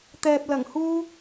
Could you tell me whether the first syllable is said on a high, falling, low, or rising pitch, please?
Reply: low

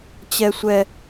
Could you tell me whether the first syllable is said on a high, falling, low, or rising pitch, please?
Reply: high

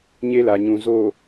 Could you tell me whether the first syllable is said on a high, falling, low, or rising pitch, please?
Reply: high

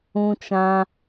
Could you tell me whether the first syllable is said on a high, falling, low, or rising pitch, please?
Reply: high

